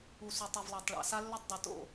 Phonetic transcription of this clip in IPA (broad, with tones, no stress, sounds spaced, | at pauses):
u˨ s u˨ tˤ e˨ v lˠ e˨ tˤ ɭ a̰˨ s a˦ lː ɵ˦ tˤ dˤ ɨ˨ t o̰˦˨